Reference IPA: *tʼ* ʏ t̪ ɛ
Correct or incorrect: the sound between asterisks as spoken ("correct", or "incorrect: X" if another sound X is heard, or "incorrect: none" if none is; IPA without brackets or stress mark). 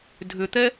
incorrect: dʱ